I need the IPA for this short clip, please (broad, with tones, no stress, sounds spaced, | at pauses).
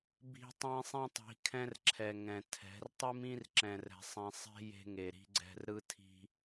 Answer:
b i̤˦ tˤ ĩ˦ sˤ ĩ˦ tˤ i̤˨˦ kʰ ɛ̃˦ r ǁʰ ɛ˨ ŋ ɛ̃˨ tʰ ɛ̤˨˦ r tˤ ɨ˦ m ĩ˦ r ǁ ɛ̃˨ r ɛ̤˨ sˤ ĩ˨ sˤ e̤˦ j e̤˦ ŋ e˨ ɾ i̤˦ ɡ͡ǀ ɛ̤˦ r ɾ ɯ˦ tʰ i̤˦